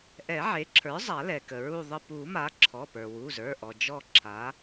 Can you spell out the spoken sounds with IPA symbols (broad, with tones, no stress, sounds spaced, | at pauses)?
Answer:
ʔ ɛ˨˩˦ ʕ e˩˥ ǁʰ ə˞˩˥ zˤ a˨˩˦ l ɛ˩ k ə˩ ɹ u˦˨ ðˤ ə˦˨ p u˨˩˦ m a˩˥ ǁʰ ɔ˩˧˩ p ə˞˩ w u˩˧˩ z ə˞˩˧˩ ʔ ɔ˩ d͡ʒ ɔ˦˨ ǁʰ a˩˥